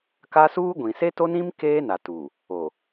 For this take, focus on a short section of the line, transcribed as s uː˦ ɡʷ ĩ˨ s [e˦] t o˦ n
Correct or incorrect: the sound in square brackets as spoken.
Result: correct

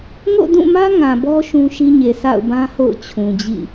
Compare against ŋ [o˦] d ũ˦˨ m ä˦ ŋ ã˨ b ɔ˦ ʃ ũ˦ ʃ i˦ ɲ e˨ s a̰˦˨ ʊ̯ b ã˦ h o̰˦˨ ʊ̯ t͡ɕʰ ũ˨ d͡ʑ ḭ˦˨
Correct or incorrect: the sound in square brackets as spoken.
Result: incorrect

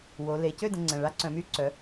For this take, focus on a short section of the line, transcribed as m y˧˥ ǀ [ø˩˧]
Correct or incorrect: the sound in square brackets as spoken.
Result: incorrect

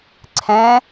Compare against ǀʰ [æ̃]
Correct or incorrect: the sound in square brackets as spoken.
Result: incorrect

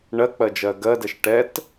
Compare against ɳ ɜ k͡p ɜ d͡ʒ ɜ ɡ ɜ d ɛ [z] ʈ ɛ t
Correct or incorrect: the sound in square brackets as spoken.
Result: incorrect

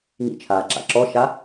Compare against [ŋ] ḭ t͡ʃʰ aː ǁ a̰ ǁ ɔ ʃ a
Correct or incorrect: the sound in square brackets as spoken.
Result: correct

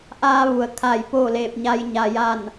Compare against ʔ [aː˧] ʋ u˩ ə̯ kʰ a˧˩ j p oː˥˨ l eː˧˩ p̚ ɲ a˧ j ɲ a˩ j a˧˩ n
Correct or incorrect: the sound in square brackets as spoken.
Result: correct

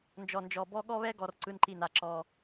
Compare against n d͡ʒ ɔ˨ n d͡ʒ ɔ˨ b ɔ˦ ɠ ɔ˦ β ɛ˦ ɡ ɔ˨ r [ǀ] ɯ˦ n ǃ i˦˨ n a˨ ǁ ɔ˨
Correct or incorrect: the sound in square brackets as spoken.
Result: correct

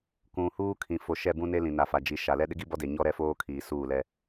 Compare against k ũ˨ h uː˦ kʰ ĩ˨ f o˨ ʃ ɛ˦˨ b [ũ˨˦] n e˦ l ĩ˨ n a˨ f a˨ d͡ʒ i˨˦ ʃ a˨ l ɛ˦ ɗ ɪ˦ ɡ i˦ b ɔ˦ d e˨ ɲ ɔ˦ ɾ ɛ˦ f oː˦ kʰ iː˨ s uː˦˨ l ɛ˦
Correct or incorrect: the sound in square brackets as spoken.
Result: incorrect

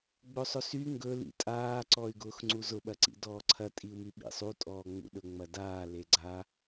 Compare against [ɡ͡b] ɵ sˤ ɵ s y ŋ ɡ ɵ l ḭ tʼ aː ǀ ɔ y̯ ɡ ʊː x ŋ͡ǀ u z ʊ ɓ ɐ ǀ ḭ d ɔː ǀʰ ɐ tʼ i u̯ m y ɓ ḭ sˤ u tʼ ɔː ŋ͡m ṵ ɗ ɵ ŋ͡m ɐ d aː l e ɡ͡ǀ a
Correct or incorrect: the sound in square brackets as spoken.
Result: correct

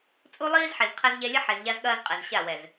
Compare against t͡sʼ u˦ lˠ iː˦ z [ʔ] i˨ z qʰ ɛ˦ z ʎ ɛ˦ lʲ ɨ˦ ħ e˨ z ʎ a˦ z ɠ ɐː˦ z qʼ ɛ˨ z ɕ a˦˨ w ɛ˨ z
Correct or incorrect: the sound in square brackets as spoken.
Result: incorrect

